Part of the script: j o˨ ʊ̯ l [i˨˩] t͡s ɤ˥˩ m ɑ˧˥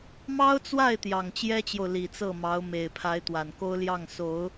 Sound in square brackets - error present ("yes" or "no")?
no